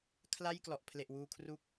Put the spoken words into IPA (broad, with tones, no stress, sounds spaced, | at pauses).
kʰ l a˥˩ j k l ɔ˨˩ ʔ pʰ l e˨˩ ʔ w uː˧ kʰ r u˦˥ k̚